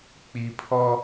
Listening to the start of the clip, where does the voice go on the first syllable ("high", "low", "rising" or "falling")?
low